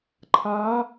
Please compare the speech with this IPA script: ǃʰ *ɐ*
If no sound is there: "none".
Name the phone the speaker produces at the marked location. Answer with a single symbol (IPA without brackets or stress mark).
a